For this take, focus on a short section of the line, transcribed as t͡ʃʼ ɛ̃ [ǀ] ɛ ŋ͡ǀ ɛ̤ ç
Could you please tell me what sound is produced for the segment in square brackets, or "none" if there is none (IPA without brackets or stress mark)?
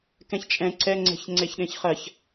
ǀ